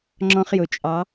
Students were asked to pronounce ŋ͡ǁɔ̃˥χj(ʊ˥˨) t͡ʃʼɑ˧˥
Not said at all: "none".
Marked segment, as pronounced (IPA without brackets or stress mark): ʊ˧˥